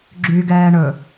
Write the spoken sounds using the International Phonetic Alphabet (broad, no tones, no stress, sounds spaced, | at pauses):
ɡ͡ǁ y ɡ ɛː ɳ ɵ